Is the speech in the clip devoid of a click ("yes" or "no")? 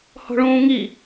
yes